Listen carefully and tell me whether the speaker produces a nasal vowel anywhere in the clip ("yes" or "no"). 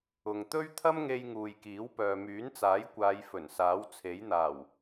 no